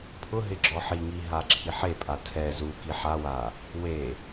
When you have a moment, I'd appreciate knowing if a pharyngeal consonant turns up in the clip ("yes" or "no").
yes